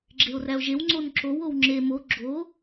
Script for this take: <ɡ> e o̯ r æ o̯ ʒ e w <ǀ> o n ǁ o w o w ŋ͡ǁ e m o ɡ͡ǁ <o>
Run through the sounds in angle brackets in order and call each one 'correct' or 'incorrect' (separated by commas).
incorrect, incorrect, correct